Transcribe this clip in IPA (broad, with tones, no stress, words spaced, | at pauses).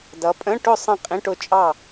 dʌ˨˦pʼə̃˧˥˧ʈʊ˥˨ sˤə̃˥˨qʼĩ˧˥˧ʈʊ˥˨t͡ʃʼɑ˥˨